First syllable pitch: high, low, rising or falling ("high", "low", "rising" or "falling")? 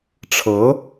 rising